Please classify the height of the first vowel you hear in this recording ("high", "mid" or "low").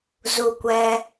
high